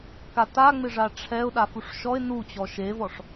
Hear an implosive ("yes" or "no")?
yes